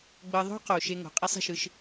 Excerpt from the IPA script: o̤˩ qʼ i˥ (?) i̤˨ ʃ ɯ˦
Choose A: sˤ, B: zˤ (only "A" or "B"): A